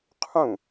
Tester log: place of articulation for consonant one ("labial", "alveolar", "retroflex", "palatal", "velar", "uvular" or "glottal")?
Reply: uvular